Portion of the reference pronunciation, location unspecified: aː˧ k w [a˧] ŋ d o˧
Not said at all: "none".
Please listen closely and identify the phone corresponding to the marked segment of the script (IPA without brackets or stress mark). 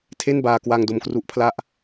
a˧